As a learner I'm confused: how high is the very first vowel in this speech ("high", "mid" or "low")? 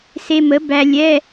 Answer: mid